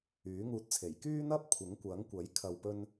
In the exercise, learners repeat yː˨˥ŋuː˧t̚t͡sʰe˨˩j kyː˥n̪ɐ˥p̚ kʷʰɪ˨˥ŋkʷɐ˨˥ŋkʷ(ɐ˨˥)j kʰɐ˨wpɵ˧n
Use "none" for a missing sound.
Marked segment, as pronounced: ɐ˨˥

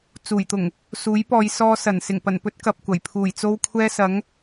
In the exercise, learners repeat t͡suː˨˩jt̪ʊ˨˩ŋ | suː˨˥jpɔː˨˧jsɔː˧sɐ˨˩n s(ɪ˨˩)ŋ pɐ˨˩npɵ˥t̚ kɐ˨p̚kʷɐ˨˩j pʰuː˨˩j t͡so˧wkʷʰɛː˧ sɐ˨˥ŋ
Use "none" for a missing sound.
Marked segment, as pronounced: ɪ˨˩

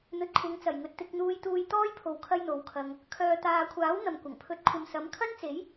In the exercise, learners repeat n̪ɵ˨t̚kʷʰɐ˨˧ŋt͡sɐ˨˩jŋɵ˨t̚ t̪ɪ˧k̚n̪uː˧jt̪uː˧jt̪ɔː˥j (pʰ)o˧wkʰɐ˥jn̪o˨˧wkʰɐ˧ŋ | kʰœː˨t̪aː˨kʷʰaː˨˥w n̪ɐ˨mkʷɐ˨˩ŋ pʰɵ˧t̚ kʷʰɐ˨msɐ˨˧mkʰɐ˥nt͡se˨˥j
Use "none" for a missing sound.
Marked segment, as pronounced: pʰ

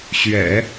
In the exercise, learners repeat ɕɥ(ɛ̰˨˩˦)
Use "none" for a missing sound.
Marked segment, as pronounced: ɛ̰˨˩˦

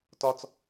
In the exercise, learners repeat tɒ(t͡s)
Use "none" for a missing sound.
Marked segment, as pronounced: t͡s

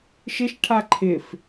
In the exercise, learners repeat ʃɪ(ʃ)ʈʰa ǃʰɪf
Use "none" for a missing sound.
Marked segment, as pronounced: ʃ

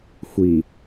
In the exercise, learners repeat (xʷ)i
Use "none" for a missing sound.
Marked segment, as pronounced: xʷ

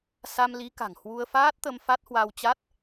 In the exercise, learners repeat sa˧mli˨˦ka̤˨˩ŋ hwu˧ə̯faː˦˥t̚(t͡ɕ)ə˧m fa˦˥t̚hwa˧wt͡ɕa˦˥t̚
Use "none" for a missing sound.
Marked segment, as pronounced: t̪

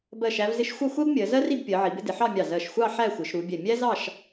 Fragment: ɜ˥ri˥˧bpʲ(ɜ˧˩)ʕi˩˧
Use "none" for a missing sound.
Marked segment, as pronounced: ɜ˩˧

